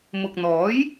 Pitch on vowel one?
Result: low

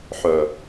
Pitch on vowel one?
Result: low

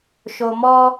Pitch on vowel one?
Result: low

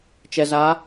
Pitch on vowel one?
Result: low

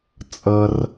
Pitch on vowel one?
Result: low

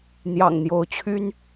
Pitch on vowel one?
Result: low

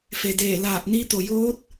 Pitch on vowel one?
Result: low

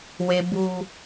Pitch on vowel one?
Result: high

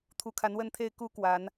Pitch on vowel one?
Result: rising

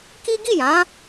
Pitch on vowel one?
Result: high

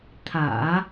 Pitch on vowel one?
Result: low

